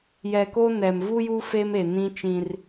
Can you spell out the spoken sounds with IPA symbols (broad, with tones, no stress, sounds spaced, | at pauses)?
j ɛ˨ k oː˦ n ɛ˨ m v u˦ j uː˦ f e˦ m e˨ n ĩ˦ t͡ʃ ĩ˦ r